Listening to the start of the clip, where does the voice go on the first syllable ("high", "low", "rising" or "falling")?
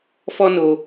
high